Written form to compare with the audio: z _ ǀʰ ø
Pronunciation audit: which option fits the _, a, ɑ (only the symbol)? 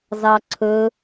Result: ɑ